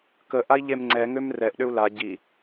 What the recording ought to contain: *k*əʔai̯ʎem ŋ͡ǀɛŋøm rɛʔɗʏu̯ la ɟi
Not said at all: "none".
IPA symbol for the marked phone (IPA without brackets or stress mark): k